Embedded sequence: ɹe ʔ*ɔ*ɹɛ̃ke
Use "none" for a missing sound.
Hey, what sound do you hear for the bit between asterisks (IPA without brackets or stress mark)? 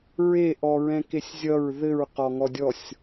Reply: ɔ